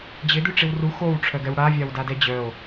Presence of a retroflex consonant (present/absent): present